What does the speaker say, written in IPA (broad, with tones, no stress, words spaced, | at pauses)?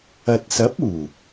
ɐ˨t̚sɐ˨˥p̚uː˨˩